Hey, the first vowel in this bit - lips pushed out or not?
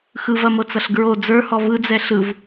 no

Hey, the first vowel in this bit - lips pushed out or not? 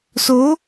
yes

